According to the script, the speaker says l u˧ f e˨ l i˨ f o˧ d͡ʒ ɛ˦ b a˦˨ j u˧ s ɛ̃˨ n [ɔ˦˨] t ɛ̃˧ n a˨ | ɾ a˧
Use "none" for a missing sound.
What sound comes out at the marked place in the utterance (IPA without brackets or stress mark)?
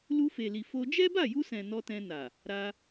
ɔ˧